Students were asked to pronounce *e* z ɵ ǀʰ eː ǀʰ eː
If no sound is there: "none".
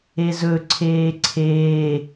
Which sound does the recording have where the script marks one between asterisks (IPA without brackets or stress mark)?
e